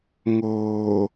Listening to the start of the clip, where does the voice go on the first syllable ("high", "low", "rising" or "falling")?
low